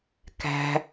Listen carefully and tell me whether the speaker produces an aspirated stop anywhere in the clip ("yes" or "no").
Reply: no